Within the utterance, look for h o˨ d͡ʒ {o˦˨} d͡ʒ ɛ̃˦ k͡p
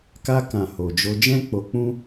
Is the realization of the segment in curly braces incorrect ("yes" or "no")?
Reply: yes